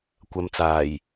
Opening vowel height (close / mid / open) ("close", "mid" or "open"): open